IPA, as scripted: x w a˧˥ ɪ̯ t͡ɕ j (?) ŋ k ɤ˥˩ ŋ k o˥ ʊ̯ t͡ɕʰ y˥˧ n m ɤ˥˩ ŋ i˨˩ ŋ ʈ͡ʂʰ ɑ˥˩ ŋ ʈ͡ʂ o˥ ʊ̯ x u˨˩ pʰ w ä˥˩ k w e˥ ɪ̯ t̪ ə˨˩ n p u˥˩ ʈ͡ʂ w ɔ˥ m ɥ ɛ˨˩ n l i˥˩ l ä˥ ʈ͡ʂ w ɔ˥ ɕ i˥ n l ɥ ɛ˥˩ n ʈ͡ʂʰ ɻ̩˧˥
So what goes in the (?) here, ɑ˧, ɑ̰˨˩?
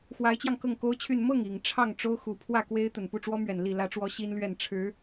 ɑ˧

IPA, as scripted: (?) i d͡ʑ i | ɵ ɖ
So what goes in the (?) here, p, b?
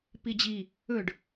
p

